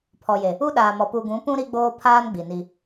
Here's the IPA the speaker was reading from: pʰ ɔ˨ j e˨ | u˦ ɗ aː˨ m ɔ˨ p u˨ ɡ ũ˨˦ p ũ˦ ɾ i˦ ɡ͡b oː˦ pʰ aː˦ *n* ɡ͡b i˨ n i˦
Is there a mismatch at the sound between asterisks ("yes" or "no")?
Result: no